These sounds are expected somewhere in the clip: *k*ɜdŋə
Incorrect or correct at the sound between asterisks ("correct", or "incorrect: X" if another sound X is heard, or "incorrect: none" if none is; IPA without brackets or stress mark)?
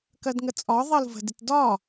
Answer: correct